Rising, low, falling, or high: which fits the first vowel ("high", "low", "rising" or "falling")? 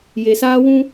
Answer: low